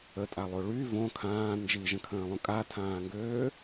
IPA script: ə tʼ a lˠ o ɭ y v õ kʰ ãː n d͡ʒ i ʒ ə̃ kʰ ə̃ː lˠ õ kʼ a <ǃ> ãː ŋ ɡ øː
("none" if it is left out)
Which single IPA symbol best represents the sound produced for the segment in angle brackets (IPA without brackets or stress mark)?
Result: tʰ